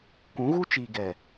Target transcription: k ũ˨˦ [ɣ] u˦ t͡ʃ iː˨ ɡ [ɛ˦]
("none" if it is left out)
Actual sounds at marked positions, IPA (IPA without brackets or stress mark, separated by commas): ɣ, ɛ˨